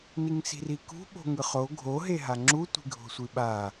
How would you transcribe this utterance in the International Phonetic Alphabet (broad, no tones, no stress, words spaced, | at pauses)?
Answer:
niŋsi̤rikṳ ɓo̤ŋɯχo ɡʱo ɦeɦaŋ͡ǁu tʷi̤ɡʱo̤sʷiɓa